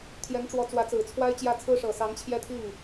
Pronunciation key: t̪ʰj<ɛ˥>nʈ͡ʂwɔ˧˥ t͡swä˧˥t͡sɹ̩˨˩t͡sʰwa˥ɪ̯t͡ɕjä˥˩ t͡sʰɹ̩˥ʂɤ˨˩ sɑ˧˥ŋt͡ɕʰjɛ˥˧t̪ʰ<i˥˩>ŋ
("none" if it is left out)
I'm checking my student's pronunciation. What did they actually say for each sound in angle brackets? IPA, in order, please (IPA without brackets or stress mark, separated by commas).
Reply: ɛ˧˥, i˥˩